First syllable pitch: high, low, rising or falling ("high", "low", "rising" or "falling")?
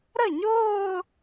falling